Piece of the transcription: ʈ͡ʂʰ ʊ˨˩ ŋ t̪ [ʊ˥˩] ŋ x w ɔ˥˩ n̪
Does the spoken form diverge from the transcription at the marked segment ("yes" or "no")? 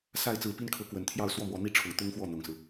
yes